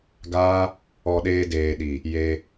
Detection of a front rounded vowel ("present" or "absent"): absent